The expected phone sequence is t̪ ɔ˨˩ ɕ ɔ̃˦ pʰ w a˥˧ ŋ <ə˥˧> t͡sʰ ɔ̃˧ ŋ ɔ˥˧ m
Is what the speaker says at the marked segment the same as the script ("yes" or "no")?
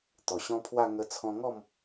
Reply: no